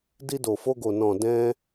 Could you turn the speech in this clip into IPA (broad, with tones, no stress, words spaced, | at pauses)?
di˧do˨fo˧ɡo˨ nɔ̃˨dɛ̃˧